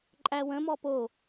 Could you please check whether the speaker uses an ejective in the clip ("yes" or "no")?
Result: yes